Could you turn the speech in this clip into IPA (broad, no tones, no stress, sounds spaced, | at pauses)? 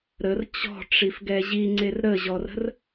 ɾ ə r t͡ɕ ɔ̤ ʈ͡ʂ i f ɡ ɛ ʑ i ŋ͡ǀ e r ɾ ə ʑ ɔ r ə̤ r